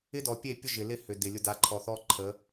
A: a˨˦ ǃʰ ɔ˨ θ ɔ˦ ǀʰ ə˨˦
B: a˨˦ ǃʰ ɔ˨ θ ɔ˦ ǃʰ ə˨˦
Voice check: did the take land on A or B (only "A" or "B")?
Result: B